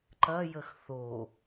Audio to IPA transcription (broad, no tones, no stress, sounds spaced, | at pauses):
ǃ ɐ j ə x θ o